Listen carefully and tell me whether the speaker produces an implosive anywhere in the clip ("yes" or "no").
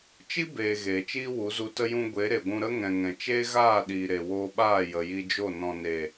yes